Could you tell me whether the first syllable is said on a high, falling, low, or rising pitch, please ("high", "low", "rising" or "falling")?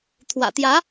low